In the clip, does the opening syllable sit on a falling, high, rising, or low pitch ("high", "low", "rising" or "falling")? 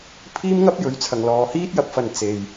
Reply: high